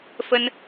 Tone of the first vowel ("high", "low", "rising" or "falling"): high